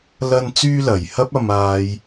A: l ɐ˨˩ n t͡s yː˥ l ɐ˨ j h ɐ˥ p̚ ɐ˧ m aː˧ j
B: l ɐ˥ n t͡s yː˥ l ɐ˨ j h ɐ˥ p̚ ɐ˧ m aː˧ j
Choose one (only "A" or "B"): B